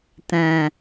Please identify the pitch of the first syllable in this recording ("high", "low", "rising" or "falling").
low